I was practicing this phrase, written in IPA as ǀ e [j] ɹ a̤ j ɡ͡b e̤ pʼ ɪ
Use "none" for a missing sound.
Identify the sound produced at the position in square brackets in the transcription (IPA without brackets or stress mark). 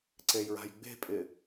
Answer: j